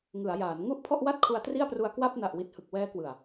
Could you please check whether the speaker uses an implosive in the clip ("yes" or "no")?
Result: no